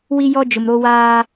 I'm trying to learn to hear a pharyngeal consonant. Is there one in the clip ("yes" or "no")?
no